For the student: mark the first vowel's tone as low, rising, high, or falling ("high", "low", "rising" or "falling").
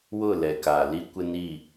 falling